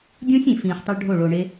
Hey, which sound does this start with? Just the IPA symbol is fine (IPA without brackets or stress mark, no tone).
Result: dʲ